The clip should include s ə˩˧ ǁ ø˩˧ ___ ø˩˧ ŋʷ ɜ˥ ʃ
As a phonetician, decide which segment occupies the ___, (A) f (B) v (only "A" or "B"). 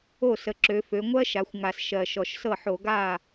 A